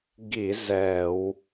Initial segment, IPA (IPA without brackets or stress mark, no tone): ɡ